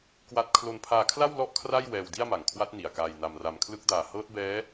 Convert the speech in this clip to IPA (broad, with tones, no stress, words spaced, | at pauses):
kwa˥˩t̚ kʰlo˧npʰaː˧kʰla˥˩w lɔ˥˩ʔkʰra˥˩j wɛː˧wdi˥˩a̯ma˨˩ŋkʰwa˦˥t̚ ni˨˩a̯kaː˧jna˧mra˧m kʰlɯ˦˥k̚daː˧ hɤː˦˥t̚bɛː˦˥